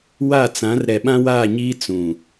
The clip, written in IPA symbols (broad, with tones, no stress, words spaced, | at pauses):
wa˦˨t͡sã˨˦r ɾɛ˨ɓã˦ waː˦˨ɲiː˦ t͡sũ˨